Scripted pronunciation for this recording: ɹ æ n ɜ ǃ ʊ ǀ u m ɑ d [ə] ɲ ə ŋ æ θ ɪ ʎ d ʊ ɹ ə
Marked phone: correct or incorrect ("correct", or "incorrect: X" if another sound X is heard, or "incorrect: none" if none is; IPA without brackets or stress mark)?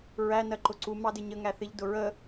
incorrect: ɪ